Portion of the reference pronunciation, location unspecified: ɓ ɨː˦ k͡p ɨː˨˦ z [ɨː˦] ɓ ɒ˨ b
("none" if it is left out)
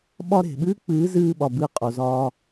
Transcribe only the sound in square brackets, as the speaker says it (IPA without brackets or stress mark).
ɨː˧